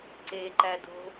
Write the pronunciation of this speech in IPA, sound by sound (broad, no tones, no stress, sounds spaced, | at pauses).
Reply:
ǀ e ǃ æ d o̤